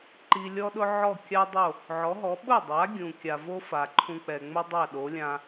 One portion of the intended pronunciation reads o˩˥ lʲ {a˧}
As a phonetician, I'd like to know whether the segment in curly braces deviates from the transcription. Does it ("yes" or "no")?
yes